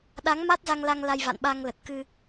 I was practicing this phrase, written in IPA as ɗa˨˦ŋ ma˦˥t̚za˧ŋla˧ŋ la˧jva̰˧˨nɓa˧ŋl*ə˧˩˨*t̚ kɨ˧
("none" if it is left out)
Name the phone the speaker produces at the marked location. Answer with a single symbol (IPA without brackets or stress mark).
ə˨˩